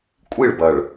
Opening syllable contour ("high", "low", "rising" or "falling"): falling